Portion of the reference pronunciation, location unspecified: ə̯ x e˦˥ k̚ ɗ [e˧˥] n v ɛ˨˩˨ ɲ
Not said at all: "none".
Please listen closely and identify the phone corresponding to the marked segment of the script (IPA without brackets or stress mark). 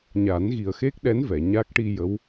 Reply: ɛ˧˥